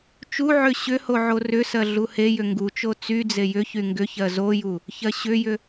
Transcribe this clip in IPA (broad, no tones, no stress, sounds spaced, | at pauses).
t͡ʃ u ʕ ʏ ɕ ʏ h o ʕ o r ʏ s ɜ ɮ u h e j ʏ ŋ ɡ u t͡ʃ o t͡s y d͡z e j ʏ ç y ŋ ɡ ʏ ç ɜ z o j u | ç ɜ ɕ ʏ j ʏ